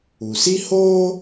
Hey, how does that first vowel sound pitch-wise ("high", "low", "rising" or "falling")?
low